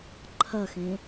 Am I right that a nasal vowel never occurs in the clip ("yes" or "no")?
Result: no